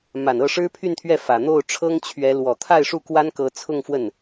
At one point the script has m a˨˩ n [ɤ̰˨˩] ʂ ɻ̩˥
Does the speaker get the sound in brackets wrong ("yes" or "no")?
yes